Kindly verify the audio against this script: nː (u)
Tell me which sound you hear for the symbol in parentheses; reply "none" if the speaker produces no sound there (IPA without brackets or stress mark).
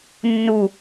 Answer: u